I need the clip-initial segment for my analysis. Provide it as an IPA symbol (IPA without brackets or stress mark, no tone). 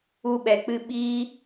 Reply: u